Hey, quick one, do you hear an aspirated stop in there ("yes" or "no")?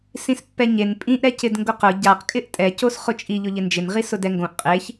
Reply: no